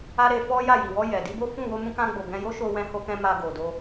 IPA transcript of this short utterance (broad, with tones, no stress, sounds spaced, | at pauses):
a˦ ɾ e˧ f ɔ˦ j a˦˨ j i˨ w ɔ˧ j ɛ˨ d i˧ b o˦ f ũ˦˨ w o˧ m ũ˧ k ã˧ ɡ͡b o˨ ɡ ɛ̃˧ j o˦ ʃ o˧ w ɛ̃˧ h o˧ k ɛ̃˧ m a˧ ɡ o˨ d o˧